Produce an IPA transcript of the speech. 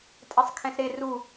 tʼesˤkʰɛ̃sɾe ru

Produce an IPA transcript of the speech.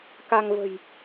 ka˧ŋvə̤˨˩j

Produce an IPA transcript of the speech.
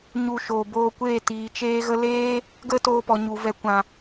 ɲu˧ʃoː˨boː˧kʷeː˦˨ tiː˨t͡ʃeː˦ɣə˦ leː˦ | ɡə˦ toː˧pɔ˨ ɲu˨vɛ˨˦kʷã˨

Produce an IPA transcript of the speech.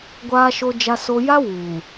ɡʷaː˦ʃo˦d͡ʒa˦so˦ ja˦wuː˨

